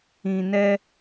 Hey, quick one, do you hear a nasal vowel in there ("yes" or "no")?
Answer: yes